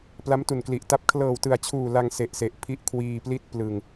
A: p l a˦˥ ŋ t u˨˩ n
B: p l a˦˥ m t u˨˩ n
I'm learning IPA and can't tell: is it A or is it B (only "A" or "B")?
B